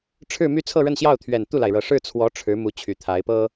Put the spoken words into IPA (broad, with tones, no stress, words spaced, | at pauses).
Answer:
ʈ͡ʂʰɻ̩˥˧my˥˧ t͡sʰɤ˥˧ɻə˥˧nɕjɑ˥˩ʊ̯t̪ʰɥɛ˨˩n t̪u˥˩la˩ɪ̯ɻɤ˨˩ ʂɻ̩˥˩t͡sʰwɔ˧˥ ʈ͡ʂʰɻ̩˧˥ mu˧˥ t͡ɕʰy˨˩t̪ʰa˧˥ɪ̯ pɤ˥